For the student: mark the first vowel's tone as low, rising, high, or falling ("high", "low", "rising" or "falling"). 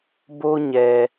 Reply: high